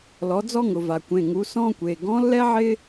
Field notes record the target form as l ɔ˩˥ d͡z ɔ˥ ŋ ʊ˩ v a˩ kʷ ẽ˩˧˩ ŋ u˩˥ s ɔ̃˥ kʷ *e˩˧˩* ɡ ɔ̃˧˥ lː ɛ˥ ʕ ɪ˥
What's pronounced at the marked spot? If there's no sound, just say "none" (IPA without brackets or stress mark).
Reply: e˩˧˩